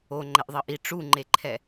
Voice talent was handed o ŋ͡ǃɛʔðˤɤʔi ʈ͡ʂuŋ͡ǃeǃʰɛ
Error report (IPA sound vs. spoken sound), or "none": none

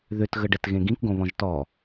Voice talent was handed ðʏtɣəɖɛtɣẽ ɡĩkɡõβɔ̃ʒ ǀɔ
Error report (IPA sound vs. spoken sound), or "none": ǀ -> t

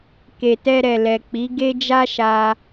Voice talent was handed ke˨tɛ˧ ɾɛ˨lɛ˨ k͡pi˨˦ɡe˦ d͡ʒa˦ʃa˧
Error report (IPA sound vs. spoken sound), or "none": none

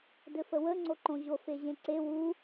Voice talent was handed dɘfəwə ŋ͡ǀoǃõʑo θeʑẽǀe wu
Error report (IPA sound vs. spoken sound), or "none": θ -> f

